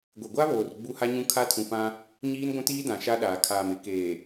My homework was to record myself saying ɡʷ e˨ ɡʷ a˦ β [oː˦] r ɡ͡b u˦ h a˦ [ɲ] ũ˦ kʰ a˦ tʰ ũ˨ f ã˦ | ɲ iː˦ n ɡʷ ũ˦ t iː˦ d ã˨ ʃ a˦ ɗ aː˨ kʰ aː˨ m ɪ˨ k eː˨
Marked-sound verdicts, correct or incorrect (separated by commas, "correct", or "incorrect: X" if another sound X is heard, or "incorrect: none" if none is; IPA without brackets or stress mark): incorrect: oː˨, correct